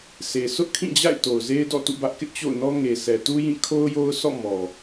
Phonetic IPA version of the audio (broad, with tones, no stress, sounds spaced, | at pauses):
sʰ e˨ s ʊ˦ ʔ kʰ ĩ˦˨ d͡ʑ a̰˦˨ ɪ̯ t o˨ ʊ̯ z e˦ ɪ̯ d ɔ̰˦˨ t ṵ˦˨ b ä˦ ʔ k ɪ˦ ʔ t͡ɕ o̰˦˨ ʊ̯ n ɔ˦ ŋ e˨ s ɛ˨ t u˦ j ĩ˦˨ kʰ o˦ ʊ̯ j o˦ ʊ̯ sʰ ɔ̰˦˨ m ɔ˨